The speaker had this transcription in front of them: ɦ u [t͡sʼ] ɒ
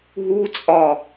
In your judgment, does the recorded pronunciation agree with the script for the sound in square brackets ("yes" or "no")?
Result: yes